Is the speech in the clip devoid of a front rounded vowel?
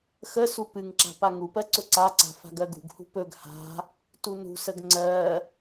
yes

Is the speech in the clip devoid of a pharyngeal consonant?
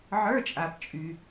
no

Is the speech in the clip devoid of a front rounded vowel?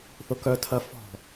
no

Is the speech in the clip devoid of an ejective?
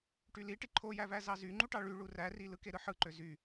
yes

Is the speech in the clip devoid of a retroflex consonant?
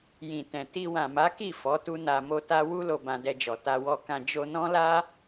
yes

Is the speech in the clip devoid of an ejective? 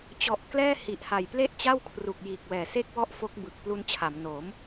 yes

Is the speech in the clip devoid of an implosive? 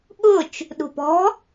no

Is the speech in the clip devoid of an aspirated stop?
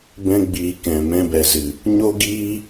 yes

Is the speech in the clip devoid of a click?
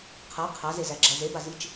no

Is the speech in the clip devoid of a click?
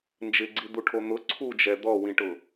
no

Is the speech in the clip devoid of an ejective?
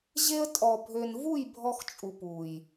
no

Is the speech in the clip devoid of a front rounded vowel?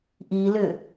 no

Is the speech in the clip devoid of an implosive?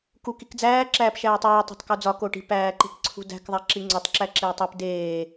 yes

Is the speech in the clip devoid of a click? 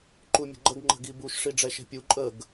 no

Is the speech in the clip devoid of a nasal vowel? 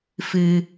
yes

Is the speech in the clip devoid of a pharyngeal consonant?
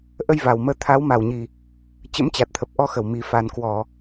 yes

